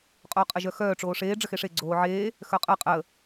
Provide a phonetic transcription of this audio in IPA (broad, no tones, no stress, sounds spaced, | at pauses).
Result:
qʼ oː qʼ ə ʒ œ x œː ʈ͡ʂ oː ʂ eː ɖ͡ʐ ə x e ʂ e ɡ͡ǀ oː ʕ eː | x œ qʼ əː qʼ ə